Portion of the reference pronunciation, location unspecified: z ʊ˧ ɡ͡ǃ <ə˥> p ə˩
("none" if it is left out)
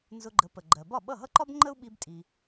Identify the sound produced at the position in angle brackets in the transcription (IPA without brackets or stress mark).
ə˩˥